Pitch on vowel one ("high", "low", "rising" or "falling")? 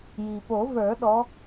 low